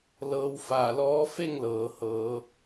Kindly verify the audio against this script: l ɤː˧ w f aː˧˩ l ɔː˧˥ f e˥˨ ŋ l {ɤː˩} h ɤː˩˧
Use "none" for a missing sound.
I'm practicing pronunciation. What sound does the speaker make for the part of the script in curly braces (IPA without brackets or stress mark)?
ɤː˩